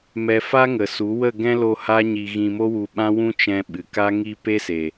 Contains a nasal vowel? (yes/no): yes